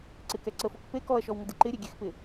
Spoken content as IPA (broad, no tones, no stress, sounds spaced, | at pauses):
ǀ ɪ k ɛ ǀ ə f o k p e k ɔ ɐ̯ ʃ ɔ w ŋ ə d ɪ ǃ ɪ ɾʲ e ɡʲ e x p ɪ